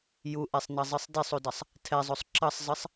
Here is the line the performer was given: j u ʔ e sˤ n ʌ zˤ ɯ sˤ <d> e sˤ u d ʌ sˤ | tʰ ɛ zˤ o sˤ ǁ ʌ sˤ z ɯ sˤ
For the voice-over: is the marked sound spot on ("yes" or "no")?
yes